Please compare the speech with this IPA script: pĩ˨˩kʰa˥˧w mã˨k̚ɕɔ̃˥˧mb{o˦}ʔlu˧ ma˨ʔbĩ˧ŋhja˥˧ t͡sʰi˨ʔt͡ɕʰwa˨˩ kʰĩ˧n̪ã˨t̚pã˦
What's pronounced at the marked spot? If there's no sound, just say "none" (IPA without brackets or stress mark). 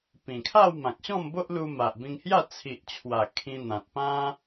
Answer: o˦